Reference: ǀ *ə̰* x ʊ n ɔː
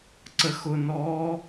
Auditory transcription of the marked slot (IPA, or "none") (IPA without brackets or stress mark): ə